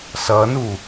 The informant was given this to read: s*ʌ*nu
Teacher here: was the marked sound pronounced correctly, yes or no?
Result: yes